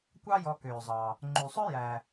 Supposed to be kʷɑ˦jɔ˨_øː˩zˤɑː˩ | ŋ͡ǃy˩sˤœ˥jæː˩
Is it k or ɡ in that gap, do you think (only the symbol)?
k